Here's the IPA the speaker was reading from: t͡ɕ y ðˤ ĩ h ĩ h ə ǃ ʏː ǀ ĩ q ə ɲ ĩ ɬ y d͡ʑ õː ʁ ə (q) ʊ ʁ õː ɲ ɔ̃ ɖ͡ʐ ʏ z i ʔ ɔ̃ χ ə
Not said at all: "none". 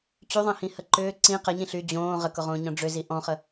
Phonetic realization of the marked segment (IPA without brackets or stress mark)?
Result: k